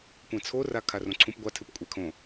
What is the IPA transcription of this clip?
kʷ ɛ̃ t͡sʰ o r a kʰ a r õ ǀʰ ũ p ɡʷ a tʰ ɨ p kʷʼ ɛ kʰ õ

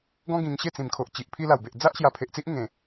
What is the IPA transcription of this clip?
ɡ ɔ̃˦ ɡ ĩ˧ ŋ ɕ e˥˧ t͡s ĩ˨˩ m kʰ o˨ ʔ t͡ɕ i˨ ʔ pʰ i˧ l a˨˩ w b e˨ ʔ d͡z a˦ ʔ ɕ j a˧ pʰ e˨ ʔ t͡s i˦ ʔ ŋ ẽ˨˩

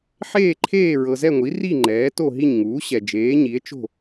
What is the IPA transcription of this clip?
ħ eː˥˨ ǃʰ eː˥˨ ɹ ɤ˨ z ɛ˥˨ ŋʷ i˩˥ r i˥˨ ŋ͡ǃ ɛː˩˥ t o˥˨ ɦ i˥˨ ɲ ŋ uː˩˥ ɕ ɛ˨ d͡ʒ eː˩˥ ɲ i˩˥ e̯ t͡ʃ o̤˥˨

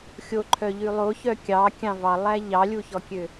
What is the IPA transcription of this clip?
xʲ o ǃʰ œ ʎ ʉ lˠ o ç œ kʲ ɑ kʲ ɑ̃ v ɑ lˠ æ ʎ ɑ lʲ u ç ɔ kʲ ø

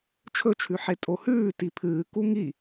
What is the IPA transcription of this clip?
t͡ʃʰ ɵ t͡ʃʰ ʉ ħ e tʼ o h ʉː t i pʰ ɨː k u ŋ i

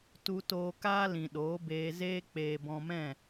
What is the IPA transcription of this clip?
t u˧ t oː˧ k aː˦ l ĩ˨ ɗ oː˨˦ b eː˧ z eː˦ k͡p eː˨ b ɔ̃˧ m ɛ̃˦˨

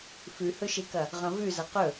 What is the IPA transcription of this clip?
f ʉ h ɵ ʃ e k ɐ | ʁ ɐ̃ v ʉ z ɐ q ɵ

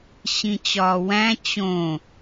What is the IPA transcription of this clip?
ɕ ĩ t͡ɕ ɒː w æ̃ t͡ɕ õ

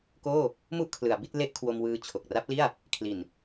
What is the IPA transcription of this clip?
k oː˥˩ | m u˥˩ ʔ kʰ l ɯ˩˦ a̯ b i˥˩ t̚ l e˦˥ ʔ kʰ w o˧ m w ɯː˧ t͡ɕʰ o˨˩ k̚ r a˦˥ p̚ l i˥˩ a̯ | kʰ l i˨˩ n

